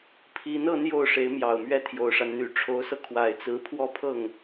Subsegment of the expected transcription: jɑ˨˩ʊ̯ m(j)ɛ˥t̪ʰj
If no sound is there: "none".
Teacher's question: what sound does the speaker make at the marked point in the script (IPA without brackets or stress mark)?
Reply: ɥ